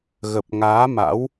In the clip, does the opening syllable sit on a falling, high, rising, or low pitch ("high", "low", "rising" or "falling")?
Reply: low